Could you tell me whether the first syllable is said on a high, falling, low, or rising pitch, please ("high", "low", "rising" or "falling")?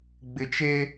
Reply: low